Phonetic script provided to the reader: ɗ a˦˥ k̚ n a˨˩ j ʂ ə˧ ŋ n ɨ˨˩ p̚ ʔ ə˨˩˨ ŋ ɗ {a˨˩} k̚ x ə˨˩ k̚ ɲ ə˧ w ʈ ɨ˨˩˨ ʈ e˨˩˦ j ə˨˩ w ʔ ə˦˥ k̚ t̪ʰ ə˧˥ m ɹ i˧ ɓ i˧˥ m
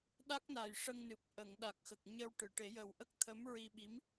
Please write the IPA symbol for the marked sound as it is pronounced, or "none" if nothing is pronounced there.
a˨˩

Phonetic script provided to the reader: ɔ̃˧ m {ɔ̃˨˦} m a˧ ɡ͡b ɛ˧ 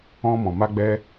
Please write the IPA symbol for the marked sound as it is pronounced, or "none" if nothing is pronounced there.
ɔ̃˨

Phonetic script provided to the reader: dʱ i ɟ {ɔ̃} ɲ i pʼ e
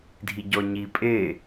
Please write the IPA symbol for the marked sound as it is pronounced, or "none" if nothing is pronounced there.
ɔ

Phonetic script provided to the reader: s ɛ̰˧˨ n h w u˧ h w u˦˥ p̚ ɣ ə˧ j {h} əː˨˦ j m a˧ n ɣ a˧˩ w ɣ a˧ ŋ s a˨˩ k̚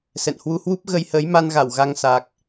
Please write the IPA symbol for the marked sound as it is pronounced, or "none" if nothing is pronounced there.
h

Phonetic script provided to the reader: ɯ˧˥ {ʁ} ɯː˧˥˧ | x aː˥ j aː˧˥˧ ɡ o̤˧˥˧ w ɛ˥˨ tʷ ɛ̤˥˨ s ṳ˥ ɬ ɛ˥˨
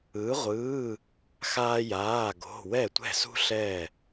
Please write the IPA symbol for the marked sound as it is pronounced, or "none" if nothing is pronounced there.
ʁʷ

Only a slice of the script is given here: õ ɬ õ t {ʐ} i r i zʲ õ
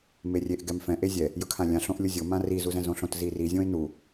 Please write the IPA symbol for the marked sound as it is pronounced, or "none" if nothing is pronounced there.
z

